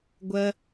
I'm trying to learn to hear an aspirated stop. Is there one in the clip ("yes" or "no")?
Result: no